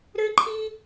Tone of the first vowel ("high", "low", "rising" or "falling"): high